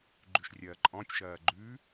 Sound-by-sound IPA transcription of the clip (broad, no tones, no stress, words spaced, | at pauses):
ɡ͡ǃʉʃrʲɐːǃʼɔ̃tʲ ʃɐːɡ͡ǃʉ